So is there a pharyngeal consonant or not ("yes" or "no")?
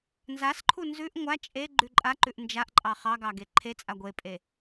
no